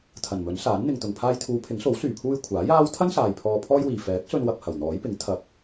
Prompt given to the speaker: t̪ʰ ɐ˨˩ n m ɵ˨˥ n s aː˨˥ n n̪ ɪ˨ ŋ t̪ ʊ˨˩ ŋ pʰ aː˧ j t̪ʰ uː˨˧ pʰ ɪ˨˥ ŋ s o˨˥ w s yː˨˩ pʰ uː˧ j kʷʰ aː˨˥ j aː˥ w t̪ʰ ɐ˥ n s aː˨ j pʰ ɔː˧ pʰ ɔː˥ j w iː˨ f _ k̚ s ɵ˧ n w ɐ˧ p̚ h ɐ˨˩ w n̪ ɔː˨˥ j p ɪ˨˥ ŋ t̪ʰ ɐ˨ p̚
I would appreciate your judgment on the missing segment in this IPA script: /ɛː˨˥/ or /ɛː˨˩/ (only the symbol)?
ɛː˨˥